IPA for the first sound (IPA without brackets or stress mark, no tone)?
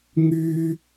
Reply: ŋ